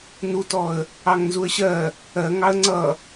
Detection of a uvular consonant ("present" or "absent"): absent